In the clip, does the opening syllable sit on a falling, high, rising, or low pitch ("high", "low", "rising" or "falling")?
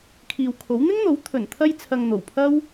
low